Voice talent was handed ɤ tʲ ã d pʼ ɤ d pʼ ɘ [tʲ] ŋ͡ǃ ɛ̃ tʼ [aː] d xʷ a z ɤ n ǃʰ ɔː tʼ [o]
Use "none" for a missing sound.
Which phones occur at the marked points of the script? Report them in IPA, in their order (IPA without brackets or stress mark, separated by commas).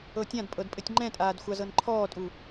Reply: tʲ, aː, u